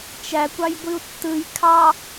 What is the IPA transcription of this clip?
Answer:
t͡ʃ æ kʷ ɑ j ɡʷ i u̯ tː ɯ j kʰ ɑ

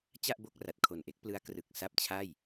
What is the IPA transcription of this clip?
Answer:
t͡ɕ a˥˩ ʔ b o˥˩ k̚ r a˨˩ t̚ kʰ o˨˩ n ʔ e˦˥ k̚ p l ɯ˦˥ a̯ k r ɯ˨˩ k̚ s a˥˩ p̚ t͡ɕʰ a˥˩ j

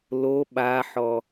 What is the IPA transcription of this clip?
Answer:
l o ɓ a ħ ɔ

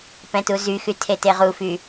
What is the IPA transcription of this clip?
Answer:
p ɛ̃ t u z y x y tʰ e t e ʁ u f y

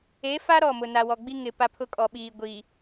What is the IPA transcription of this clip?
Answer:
e˨˦ f a˦ ɾ ɔ˦˨ m ʊ˨ n a˨ w ɔ˨ ɡ͡b i˦ ŋ ɪ˨ p a˦ pʰ ʊ˦ kʼ ɔ˨ ɓ iː˨ ɡʷ i˨

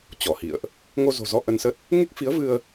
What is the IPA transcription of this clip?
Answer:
t͡ɕ ɔ˧˩ h ḭ˧˨ ə̯ ʔ | ŋ o˧ z o̤˨˩ z ɔ˧ ʔ ə˧ n s ə˦˥ t̚ | ŋ e˦˥ k̚ f i˨˦ ə̯ v ɨ˧ ə̯

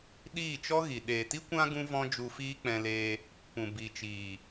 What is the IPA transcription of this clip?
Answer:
ɗ iː˦˨ t͡ʃ ɔ˦ ɣ i˨ ɗ eː˨ t i˦ kʷ ã˦ ɡ ũ˦ v ɔ̃˦ d͡ʒ u˧ f iː˦ k͡p ɛ̃˧ l e˧ | p ũ˨ b i˨ t͡ʃ iː˨

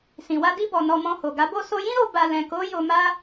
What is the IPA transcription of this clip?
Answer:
s ĩ˨ w a˧ d i˧ b ɔ˨ n ɔ˧ m ɔ̃˧ h o˨ ɡ a˨˦ b o˦˨ s o˧ j ĩ˦ ɾ o˧ b a˧ l ɛ̃˨ k o˨˦ j o˧ m a˦

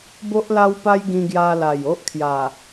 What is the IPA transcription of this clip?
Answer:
b o˦ ʔ l a˦ w p a˦ j ɡ ĩ˧ ɡ j a˧ l a˨˩ j o˦ ʔ kʰ j a˨˩

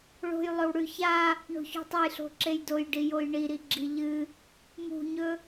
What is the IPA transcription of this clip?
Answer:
ɭ o̤ j lˠ ɵ w ɽ ʉ ç a | ɳ o̤ ç o̤ tˤ ɨ j ɬ o̤ ǁ e j d o j ɖ i j o j ɳ i ɾ i ɡ͡ǁ i ʎ ɨ | m ṳ ɲ ɵ

